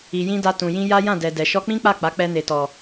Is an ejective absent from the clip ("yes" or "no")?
yes